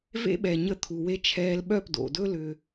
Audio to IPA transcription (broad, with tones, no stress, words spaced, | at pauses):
vḛ˦ɓɛ˨ ɲə˧t̪ʰu˨we˧ t͡ʃʰɛː˧lɓœ˦˨pdo̰˨dɵ˦ lʏ˧